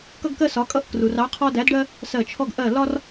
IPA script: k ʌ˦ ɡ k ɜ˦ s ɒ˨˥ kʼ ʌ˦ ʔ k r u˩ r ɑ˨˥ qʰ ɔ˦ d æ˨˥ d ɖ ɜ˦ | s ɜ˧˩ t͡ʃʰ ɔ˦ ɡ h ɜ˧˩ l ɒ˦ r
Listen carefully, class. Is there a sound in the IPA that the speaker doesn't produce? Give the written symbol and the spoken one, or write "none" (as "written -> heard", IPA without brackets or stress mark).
h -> ʔ